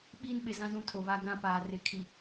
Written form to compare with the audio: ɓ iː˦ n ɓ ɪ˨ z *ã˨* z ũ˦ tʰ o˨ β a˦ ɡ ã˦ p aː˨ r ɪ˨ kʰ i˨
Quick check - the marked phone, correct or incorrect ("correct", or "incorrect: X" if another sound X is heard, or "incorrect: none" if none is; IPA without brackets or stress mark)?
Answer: incorrect: ã˦